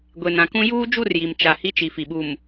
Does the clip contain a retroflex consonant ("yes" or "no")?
no